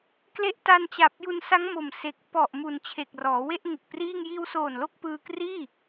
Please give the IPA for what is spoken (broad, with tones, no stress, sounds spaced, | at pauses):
k l e˦˥ ʔ t a˧ n t͡ɕ a˨˩ p̚ j u˧ n s a˦˥ ŋ m o˨˩ m s e˨˩ k̚ p ɔ˨˩ ʔ m u˨˩ n t͡ɕʰ e˨˩ k̚ r ɔː˩˦ w e˥˩ ʔ ŋ ɯ˨˩ k̚ p r iː˥˩ ŋ j iː˧ w s oː˨˩ n l o˥˩ k̚ p ɯː˧ k r iː˥˩